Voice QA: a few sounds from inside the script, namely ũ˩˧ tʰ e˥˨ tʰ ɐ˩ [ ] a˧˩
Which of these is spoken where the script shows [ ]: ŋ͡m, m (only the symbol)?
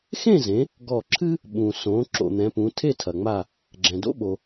ŋ͡m